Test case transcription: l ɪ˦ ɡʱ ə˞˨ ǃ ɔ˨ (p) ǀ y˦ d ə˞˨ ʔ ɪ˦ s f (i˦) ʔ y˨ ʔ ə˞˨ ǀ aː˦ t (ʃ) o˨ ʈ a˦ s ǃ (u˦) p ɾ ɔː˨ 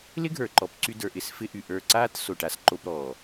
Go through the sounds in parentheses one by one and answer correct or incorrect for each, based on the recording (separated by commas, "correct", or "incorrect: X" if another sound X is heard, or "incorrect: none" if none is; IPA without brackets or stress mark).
correct, incorrect: ɪ˦, incorrect: s, incorrect: o˦